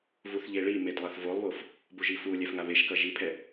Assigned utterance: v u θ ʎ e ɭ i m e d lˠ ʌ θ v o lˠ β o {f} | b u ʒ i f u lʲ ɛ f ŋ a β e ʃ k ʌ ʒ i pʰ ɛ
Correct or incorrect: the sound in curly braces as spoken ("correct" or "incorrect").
correct